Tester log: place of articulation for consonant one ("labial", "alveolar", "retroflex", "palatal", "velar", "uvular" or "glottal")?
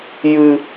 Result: palatal